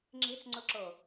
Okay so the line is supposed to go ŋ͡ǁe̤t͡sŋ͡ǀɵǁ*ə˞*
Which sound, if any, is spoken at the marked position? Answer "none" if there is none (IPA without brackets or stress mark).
ɤ